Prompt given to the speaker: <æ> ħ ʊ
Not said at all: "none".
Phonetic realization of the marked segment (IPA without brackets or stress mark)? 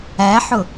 æ